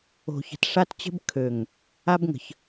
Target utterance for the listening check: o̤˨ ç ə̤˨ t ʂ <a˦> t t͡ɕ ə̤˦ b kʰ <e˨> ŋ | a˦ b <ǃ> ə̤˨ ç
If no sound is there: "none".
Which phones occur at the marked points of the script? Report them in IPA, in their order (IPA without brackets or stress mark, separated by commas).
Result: a˦, ø˨, ŋ